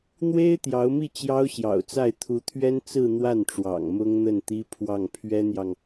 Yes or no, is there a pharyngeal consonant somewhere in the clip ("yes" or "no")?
no